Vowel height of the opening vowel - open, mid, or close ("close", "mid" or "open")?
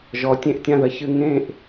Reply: mid